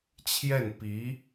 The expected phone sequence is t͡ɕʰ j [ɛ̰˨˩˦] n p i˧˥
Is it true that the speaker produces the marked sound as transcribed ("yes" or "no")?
no